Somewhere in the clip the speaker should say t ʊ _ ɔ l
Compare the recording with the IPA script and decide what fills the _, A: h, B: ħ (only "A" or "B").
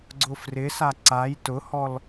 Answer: A